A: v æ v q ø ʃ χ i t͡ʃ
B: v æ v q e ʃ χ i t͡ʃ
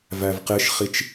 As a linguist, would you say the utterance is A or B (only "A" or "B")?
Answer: B